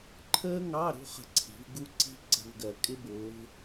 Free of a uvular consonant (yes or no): no